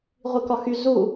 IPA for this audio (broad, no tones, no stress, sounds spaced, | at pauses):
ʁʷ i k ɒ x y z u